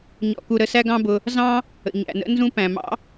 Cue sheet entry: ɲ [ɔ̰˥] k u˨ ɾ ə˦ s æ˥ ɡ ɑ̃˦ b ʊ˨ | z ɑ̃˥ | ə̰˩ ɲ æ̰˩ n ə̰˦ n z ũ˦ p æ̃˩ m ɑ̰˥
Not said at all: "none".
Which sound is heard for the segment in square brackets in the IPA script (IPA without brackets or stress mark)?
ɔ̰˨